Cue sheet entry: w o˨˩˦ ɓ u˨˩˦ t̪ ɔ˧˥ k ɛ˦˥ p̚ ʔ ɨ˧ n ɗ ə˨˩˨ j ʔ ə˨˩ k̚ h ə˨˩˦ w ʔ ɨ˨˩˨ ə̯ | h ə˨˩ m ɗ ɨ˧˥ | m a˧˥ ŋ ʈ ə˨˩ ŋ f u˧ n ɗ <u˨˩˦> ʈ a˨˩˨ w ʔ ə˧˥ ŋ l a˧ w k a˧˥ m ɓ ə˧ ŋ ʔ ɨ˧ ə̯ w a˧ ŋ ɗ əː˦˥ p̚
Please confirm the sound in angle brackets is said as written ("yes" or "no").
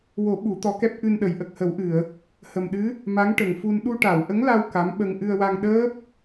no